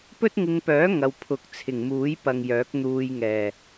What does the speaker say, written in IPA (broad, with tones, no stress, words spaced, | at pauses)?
pɵ˥t̚ŋɪ˧ŋpœː˨˥ ŋɐ˨˧wpʰʊ˨k̚ t͡sʰɪ˨˩ŋmuː˨˥jpɐ˨ŋ jœː˨˥k̚n̪uː˧jŋɛː˨˩